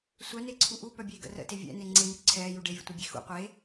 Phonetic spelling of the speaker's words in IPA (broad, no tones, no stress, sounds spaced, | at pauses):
sʷ œ n e ǀʰ u ʔ u p œ bʲ eː ɡ ə̰ r ə̰ t e vʲ ɛ̰ n e ŋ͡ǀ e m y ǀʰ ɛː j u ɖ e vʲ ə̰ tʷ ɛ bʲ e x ṵ qʷ e